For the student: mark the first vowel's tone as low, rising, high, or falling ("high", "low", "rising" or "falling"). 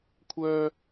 high